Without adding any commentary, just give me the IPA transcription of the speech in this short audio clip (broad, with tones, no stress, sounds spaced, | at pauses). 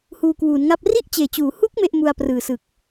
h uː˧ k w uː˩˦ n ŋ a˥˩ p̚ r i˥˩ ʔ t͡ɕ eː˨˩ t͡ɕ uː˩˦ h u˦˥ k̚ m e˥˩ ʔ m u˧ a̯ p r ɯː˨˩ s ɯ˨˩ k̚